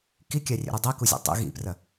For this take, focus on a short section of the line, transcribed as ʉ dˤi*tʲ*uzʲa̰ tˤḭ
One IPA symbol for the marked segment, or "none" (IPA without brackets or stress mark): k